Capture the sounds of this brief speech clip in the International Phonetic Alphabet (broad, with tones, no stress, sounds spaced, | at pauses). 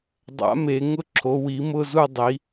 dˤ a̰˨˥ m e˩˧ ŋ ʊ˦˨ ǁʰ o˩˧ w i˩˧ m ʊ˦˨ z u˦˨ dˤ i˩˧